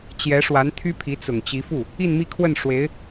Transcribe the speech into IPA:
t͡ɕ j ɛ˧˥ ʂ w a˧˥ n t̪ʰ y˥ pʰ i˧˥ t͡s ʊ˨˩ ŋ t͡ɕ i˧˥ f u˥˩ | i˥˧ n m i˥˧ kʰ w ə˥˩ n ʂ w e˧˥ ɪ̯

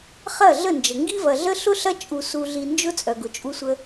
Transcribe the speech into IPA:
χ ɐ˦˨ ɮ ə˦˨ n d͡ʒ ə˨ ŋ ɡ i˦ v ɐ˨ ɮ ə˦ ɬ ʊ˦ ɬ ɐ˦ t͡ʃʼ u˧ s u˧ ɮ i˧ n d͡ʒ ʊ˦ t͡sʼ œ˨ ɡ ʊ˨ t͡ʃʼ u˦ sʷ ə˦

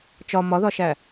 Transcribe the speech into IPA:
t͡ʃ ɒ m ɒ ð ɒ ʃ æ

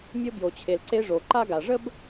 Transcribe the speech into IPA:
mʲ o˧ b j o˩ t͡ɕʰ e˩ l ǀ e˧ ʐ o˩ ǃ a˥ ɡ a˩ ʐ ə˥ b

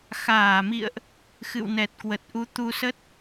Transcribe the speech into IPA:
x aː˧˩ m ḭ˧˨ ə̯ ʔ | x ɨ̰˧˨ w n ɛ˨˩ t̚ k w ə˨˩ t̚ ʔ u˨˦ t̪ u˧ s ə˦˥ t̚

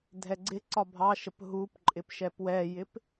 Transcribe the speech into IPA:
dʱ ɛ ɡ͡ǀ ɪ ǀ ɒ bʱ ɑ ʃ ə p ɦ u p ǃʼ ɪ p ʃ ɛ p w ɛ j ɪ p

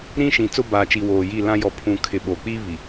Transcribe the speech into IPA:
ɾ ĩ˦ ʃ ĩ˨ t͡s ʊ˦ b aː˨ t͡ʃ i˨ w oː˨ j i˦˨ l ã˦ j ɔ˨ pʰ ũ˨ kʰ ɪ˨ ɓ oː˨ k͡p iː˦ β i˨

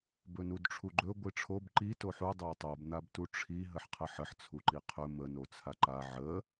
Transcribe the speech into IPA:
b ɵ n u d ʈ͡ʂʰ u ɡ͡ǃ ɵ ɡʷ i ʈ͡ʂʰ o b ǃ i t o ħ u dˤ a tˤ o b n̪ a b t u ʈ͡ʂʰ i ɦ ə ħ qʰ ə ħ ə ħ t͡sʰ u ǃ i qʰ ɵ m ə n o t͡sʰ a ǃ a ʕ ə

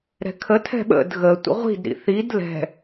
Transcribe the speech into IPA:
ɾ ɛ̤ kʰ ə tʰ ɛ̤ ɓ ə̰ d ɣ ə tʷ ə̰ ʁʷ i̤ d ɾ ḭ θ i d l ɛ̤

